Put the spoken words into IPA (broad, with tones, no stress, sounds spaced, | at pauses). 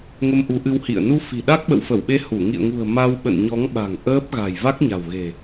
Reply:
ŋ ə˧ m ʔ u˨˦ ʔ ɨ˧ w h ḭ˧˨ ə̯ n u˧ f i̤˨˩ ɗ a˦˥ k̚ ɓ ə̰˧˨ w f ə˧˩ w ɓ e˧ h u˧˩ ŋ ḭ˧˨ ə̯ ŋ ṳ˨˩ ə̯ m a˧ w ɓ ə̰˧˨ n ɲ ɔ˨˦ ŋ ɓ a̤˨˩ ŋ ʔ əː˦˥ p̚ ɣ a̤˨˩ j v a˦˥ k̚ ɲ a̤˨˩ w ɣ e̤˨˩